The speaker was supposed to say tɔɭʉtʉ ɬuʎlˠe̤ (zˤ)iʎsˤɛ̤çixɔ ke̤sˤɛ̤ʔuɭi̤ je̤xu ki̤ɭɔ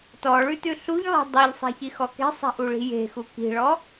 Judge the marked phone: incorrect: dˤ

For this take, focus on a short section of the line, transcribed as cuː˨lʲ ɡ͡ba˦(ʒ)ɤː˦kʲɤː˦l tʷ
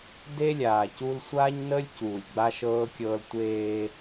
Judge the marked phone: incorrect: ʃ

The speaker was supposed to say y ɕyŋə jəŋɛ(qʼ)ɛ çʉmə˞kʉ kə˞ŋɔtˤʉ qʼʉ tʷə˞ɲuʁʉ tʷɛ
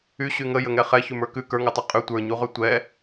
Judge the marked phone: incorrect: χ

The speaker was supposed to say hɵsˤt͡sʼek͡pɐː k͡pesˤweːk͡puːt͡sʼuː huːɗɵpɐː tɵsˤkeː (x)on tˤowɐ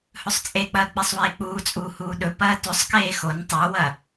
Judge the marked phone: correct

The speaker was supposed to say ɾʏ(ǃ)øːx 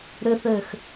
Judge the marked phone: incorrect: θ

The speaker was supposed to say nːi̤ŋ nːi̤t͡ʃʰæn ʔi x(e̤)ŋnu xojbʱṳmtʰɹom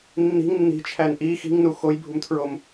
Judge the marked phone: incorrect: i̤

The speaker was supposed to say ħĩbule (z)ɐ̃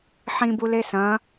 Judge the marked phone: incorrect: s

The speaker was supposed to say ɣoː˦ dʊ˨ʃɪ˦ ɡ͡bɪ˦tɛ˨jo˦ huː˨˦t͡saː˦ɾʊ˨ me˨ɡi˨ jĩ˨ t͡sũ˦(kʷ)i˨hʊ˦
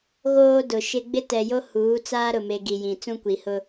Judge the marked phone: correct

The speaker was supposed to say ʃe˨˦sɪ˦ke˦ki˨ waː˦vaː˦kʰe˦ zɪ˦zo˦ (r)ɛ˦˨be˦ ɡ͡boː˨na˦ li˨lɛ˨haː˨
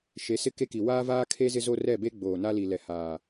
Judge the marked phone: correct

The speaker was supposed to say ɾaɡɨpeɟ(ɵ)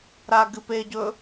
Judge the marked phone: correct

